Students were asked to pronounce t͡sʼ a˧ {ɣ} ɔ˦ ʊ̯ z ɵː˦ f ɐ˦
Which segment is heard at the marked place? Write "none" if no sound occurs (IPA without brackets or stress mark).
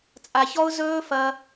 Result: ç